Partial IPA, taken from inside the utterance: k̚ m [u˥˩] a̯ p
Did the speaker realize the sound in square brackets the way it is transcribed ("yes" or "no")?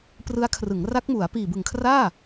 no